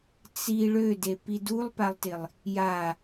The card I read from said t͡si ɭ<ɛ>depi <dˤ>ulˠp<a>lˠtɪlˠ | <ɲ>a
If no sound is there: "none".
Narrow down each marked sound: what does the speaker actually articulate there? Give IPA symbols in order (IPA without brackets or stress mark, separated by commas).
ø, d, a, j